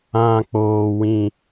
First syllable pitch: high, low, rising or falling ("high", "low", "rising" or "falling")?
low